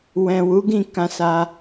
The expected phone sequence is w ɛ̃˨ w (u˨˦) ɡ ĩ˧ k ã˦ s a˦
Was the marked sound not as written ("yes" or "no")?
no